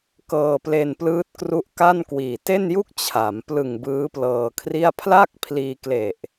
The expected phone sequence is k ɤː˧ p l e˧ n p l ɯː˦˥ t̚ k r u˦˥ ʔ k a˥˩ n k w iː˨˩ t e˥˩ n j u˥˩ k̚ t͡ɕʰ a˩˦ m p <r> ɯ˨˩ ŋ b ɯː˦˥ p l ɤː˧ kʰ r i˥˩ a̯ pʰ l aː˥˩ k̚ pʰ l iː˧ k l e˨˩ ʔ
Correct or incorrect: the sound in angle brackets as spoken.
incorrect: l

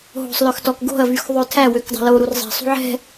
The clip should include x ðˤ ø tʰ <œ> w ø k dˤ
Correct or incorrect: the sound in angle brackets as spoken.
incorrect: æ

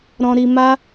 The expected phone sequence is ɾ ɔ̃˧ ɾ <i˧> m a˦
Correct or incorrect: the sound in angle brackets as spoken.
correct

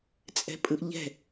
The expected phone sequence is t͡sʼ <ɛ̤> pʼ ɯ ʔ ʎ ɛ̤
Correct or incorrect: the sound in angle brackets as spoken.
correct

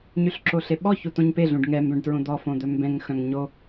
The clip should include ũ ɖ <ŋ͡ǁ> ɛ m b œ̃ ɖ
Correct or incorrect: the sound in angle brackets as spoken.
incorrect: ŋ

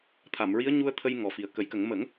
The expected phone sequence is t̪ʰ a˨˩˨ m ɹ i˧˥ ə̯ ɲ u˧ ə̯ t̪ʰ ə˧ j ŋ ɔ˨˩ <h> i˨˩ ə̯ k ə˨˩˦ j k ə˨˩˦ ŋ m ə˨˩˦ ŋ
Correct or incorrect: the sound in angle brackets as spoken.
incorrect: f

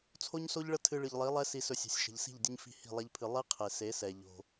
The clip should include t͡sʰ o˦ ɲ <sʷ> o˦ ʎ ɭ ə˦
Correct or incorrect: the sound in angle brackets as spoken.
incorrect: s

